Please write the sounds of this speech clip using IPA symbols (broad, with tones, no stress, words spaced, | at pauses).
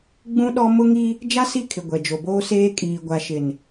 ɡ͡bũ˦ɗɔ˦ mʊ˦ŋi˦ | d͡ʒa˦si˦˨kʰɪ˨ ɡʷɛ˨d͡ʒo˨boː˦seː˦ kʼiː˨ɡʷa˨ʃɪ˨n